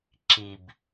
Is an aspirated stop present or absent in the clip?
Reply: absent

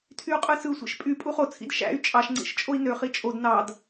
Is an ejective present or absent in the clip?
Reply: present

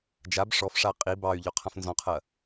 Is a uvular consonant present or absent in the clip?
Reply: present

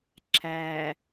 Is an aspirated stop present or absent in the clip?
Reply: present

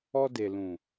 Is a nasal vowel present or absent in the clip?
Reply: present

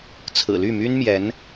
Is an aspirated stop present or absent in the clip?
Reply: present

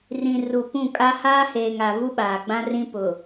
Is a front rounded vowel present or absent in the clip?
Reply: absent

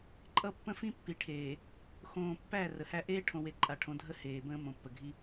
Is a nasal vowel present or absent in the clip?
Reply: present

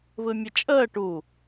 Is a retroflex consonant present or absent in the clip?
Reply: present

